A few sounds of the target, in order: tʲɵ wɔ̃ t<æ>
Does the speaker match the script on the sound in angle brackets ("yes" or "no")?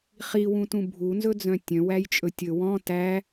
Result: yes